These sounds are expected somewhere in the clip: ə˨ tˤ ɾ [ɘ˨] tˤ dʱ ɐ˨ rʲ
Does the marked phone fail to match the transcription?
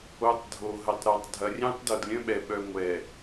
yes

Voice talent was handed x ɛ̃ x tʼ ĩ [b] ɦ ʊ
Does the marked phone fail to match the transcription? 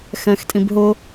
no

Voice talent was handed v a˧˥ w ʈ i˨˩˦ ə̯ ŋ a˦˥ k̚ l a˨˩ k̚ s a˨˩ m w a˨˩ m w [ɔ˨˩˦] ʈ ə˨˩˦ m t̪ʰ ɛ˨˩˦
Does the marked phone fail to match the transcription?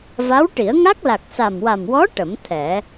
yes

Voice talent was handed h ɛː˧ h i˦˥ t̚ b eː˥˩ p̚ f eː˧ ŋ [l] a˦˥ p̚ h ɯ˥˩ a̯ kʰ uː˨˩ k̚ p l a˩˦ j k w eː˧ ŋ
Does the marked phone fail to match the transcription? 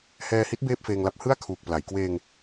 no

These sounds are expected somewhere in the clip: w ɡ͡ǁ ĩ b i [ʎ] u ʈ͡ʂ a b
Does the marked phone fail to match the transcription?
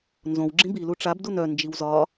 yes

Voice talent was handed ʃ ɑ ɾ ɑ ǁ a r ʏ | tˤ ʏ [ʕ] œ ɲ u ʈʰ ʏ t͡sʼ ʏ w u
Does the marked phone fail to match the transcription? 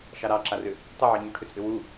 no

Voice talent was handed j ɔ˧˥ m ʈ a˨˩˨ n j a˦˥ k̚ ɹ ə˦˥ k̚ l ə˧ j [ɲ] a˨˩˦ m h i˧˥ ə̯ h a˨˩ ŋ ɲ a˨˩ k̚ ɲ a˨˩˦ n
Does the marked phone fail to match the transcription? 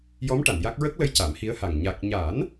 yes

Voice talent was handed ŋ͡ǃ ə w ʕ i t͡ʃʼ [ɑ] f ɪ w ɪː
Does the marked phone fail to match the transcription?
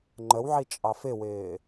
no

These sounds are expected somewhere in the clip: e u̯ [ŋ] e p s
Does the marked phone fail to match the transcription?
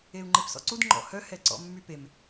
yes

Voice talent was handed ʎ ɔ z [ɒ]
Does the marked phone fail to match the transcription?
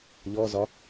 no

